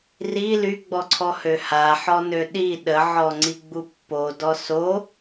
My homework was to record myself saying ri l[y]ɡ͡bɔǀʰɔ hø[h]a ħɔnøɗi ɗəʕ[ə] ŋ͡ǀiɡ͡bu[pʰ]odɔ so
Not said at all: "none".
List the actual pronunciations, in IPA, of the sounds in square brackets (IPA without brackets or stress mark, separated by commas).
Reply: y, h, ɔ, pː